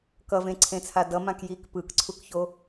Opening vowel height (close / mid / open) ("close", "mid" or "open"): mid